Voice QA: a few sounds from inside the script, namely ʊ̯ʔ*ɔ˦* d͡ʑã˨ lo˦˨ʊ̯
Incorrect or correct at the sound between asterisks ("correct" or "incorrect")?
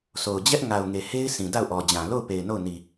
incorrect